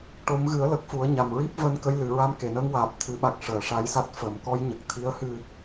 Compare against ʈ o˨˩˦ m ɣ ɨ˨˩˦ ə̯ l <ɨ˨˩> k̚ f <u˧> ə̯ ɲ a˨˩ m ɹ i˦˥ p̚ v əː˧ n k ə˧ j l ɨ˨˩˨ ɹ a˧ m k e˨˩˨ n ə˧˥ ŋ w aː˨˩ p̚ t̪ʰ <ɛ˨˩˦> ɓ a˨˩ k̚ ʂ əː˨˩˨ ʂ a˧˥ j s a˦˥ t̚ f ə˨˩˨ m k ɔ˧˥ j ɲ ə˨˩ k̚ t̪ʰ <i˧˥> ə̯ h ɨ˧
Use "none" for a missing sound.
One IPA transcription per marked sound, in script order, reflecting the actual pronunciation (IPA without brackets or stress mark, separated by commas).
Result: ə˨˩, u˨˩˦, ɨ˨˩˦, i˧˥